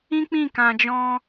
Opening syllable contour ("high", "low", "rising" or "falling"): high